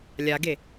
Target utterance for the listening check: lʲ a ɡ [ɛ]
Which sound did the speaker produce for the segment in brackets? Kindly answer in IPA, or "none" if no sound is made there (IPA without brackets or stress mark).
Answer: e